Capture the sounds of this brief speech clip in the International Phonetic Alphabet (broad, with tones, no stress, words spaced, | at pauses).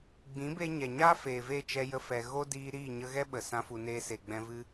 ɡ͡bĩ˨˦be˧ɲɛ˨ɲaː˦ feː˨ve˦˨ t͡ʃɛ˦jə˦fɛ˧ ɣo˦diː˧ ɾiː˦˨ɲə˧ɣɛ˦ ɓə˨ sã˧fu˨neː˧ se˨ɡ͡bɛ̃˧vɨ˦